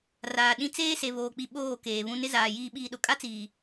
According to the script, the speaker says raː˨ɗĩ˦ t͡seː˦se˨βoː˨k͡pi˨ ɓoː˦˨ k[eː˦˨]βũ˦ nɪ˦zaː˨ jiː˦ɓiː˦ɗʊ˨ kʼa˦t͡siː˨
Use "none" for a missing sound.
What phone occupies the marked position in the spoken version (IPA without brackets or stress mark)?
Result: eː˨